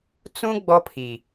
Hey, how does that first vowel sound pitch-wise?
high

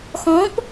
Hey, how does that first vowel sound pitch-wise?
rising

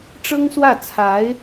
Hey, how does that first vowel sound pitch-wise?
high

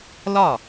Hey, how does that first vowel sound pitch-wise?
falling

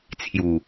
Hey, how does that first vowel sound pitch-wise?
low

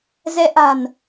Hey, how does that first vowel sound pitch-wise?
rising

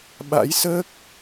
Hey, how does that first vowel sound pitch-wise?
rising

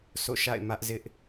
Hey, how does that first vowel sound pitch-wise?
falling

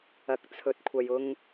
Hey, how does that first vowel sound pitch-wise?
rising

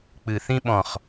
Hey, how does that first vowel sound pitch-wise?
low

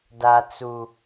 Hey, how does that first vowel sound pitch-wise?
low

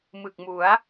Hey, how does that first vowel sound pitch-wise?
low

